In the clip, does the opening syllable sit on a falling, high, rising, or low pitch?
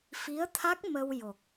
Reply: rising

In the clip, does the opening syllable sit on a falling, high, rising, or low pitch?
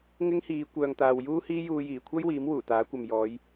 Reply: high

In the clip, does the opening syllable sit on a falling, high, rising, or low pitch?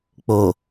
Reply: low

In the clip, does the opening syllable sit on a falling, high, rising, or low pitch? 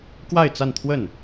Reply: falling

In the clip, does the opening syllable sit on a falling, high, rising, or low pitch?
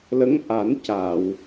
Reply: rising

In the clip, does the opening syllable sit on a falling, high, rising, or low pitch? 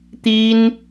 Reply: high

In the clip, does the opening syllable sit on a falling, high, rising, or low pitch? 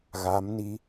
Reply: rising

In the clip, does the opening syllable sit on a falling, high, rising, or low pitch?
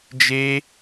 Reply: high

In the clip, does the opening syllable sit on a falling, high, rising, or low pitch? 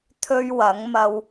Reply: high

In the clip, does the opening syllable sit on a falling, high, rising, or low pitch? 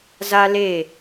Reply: high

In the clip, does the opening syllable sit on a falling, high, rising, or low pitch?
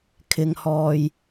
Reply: low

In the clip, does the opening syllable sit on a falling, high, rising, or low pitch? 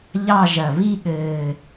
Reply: falling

